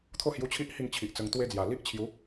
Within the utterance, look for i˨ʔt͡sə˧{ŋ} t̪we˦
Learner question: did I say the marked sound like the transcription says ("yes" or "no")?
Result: yes